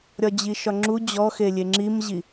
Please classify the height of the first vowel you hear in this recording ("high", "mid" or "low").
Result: low